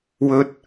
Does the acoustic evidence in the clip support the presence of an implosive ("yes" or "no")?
no